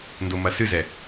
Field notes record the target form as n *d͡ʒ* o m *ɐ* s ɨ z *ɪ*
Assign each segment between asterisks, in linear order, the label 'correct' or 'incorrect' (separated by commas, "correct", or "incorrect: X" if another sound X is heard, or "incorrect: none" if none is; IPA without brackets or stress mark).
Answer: incorrect: d, correct, incorrect: ɛ